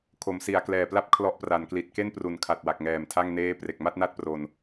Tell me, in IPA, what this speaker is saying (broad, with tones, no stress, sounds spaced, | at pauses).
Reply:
kʰ o˩˦ m s i˩˦ a̯ k l ɛː˨˩ p l a˥˩ p̚ kʰ l ɔ˦˥ ʔ p r a˩˦ n k l i˨˩ t̚ k e˥˩ n p r u˩˦ n kʰ a˨˩ t̚ w a˨˩ k̚ ŋ ɛː˨˩ m tʰ a˥˩ ŋ n eː˦˥ p r e˨˩ k̚ m a˥˩ t̚ n a˥˩ t̚ p r o˧ n